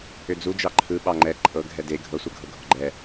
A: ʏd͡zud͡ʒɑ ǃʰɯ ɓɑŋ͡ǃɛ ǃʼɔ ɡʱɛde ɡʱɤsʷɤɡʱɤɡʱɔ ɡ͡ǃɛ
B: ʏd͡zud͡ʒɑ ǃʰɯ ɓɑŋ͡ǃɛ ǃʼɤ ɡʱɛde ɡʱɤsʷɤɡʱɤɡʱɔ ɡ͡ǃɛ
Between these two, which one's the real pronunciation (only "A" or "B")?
B